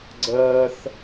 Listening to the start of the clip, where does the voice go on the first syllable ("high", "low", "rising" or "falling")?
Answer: high